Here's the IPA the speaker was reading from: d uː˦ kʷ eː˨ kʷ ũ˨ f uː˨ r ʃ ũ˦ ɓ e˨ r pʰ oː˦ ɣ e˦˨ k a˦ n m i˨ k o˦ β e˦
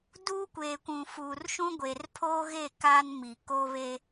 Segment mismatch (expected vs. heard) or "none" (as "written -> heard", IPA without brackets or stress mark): ɓ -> ɡʷ